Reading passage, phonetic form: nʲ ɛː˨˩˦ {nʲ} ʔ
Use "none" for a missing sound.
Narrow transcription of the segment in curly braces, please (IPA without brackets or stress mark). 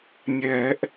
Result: none